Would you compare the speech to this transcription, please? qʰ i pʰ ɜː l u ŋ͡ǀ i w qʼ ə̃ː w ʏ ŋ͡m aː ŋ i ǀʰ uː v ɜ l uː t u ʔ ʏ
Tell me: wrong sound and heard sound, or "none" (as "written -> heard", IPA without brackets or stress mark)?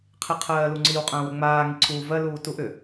pʰ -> qʰ